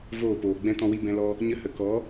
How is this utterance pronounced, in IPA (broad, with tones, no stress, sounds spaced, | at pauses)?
v oː˦˨ p oː˨ ɡ͡b ɛ̃˦ t ɔ̃˧ w i˧ b ɛ̃˧ l ɔ˧ | ɲ ə˧ h ə˨ k ɔ˨˦